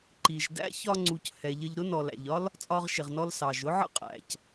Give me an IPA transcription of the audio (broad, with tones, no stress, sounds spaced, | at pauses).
ǃ i˨ ʒ d æ̰˦ ç ɒ˦ ŋ͡ǀ u˧ c h ɛ˨ ʎ ə˧ ʎ ɾ ʊ˦ n ɔ˨ l æ̰˨ ʎ ɒ˦ l | t͡sʼ ɒ˧ ʁ ʃ ɪ˨ ʁ n ɔ˧ l s ɑ˨ ʒ ʊ˦ ʕ ə̰˦ qʼ æ̰˨ c